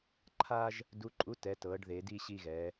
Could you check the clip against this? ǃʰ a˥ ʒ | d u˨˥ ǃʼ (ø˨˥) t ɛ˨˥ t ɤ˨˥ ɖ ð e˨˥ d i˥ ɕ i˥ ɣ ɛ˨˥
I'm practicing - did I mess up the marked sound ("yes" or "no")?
yes